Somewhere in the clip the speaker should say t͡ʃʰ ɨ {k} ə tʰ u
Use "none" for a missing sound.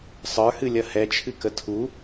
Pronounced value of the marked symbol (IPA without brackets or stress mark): k